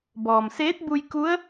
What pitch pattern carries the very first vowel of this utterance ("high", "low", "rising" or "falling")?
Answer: low